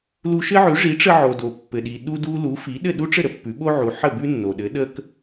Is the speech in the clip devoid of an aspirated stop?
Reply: yes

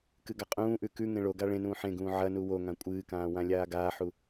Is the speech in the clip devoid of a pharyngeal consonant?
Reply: no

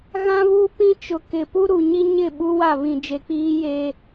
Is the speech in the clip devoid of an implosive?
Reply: no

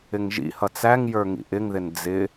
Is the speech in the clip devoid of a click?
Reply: yes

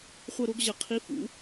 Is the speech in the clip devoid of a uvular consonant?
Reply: no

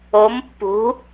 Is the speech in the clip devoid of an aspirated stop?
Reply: yes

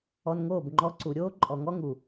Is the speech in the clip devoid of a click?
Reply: no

